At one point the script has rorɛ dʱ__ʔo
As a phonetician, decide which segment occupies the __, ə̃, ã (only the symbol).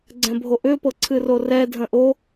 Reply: ə̃